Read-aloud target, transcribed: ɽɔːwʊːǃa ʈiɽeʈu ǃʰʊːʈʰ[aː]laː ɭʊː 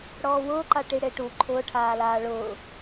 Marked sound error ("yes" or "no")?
no